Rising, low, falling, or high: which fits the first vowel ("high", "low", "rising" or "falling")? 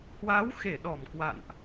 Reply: rising